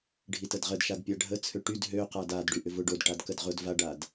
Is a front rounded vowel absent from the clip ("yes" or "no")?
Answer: no